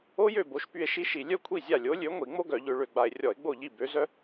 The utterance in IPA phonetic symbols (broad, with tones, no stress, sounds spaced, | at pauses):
o˥ j ø˥˩ b o˨˥ ʃ p y˧ e̯ ʃ i˥ ʃ i˧˩˧ lʲ œ˥ kʷʰ i˥˩ zʲ a˥˩ lʲ o˨˥ lʲ ø˨˥ ŋʷ i˧˩˧ ŋ͡m o˥ ɡ œ˧˩˧ ʎ ø˧ ɭ ø˧ ɡ͡b a˧ e̯ rʲ ɔ˧˩˧ e̯ ɡ͡b o˥˩ ʎ i˥˩ b ø˨˥ z œ˥